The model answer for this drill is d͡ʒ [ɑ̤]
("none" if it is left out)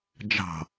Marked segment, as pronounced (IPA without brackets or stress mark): ɑ̤